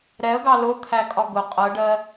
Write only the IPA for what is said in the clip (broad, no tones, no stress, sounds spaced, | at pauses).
ɾ ɛ ə̯ ɡ ɑ l ʊ t̪ʰ æ kʼ ɒ ɡ ʊ qʼ ɜ ɖ ɜ